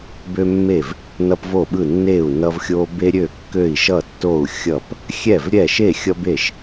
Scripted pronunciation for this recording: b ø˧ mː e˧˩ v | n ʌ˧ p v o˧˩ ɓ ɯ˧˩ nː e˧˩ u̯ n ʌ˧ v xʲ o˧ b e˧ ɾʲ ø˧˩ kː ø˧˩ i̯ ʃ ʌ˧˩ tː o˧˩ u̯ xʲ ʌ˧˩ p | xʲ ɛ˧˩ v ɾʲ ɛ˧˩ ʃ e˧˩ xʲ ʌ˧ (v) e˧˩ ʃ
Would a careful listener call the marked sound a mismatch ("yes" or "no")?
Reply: yes